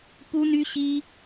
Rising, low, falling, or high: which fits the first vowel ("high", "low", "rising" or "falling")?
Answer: high